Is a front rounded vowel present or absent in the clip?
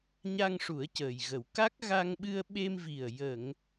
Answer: absent